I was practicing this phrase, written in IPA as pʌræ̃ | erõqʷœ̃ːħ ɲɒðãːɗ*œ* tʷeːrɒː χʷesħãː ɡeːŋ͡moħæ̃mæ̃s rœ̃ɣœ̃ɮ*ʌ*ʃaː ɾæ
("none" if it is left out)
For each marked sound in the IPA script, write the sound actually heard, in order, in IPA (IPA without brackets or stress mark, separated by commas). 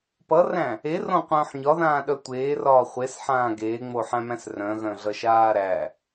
œ, ʌ